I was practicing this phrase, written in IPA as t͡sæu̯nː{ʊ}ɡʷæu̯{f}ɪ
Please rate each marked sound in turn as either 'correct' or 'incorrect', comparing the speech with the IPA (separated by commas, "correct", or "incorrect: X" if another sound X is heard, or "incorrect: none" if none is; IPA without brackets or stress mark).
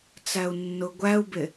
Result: correct, incorrect: b